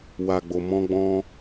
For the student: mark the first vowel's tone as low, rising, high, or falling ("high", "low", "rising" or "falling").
low